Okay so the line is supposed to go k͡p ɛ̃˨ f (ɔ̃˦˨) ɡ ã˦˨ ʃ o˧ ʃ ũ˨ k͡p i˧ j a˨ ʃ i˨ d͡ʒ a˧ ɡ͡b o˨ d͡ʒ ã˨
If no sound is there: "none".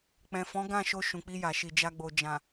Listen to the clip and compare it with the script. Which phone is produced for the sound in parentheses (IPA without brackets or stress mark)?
ɔ̃˨˦